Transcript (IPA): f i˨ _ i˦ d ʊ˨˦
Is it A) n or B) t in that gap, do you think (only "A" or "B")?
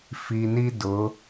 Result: A